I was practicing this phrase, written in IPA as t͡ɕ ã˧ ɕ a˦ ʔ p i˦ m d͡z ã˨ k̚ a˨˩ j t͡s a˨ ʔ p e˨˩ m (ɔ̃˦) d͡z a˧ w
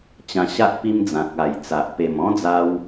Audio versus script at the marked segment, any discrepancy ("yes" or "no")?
no